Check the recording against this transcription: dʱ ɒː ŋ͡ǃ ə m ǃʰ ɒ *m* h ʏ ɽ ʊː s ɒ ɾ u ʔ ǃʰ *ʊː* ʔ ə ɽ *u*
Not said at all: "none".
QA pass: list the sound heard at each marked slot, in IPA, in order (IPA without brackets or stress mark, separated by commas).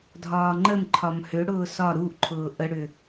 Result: m, ʊː, ʏ